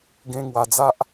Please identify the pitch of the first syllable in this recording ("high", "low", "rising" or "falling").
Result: high